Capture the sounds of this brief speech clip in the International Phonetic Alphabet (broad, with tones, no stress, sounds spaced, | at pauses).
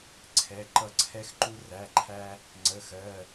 ǀʰ ɛ˩˧˩ ǃ ʌ˧ ǀʰ ɛ˧ x ǃ u˧ r æ˩˧˩ ǃʰ æ˧ | ŋ͡ǀ ə˩˧˩ x ɜ˩˧˩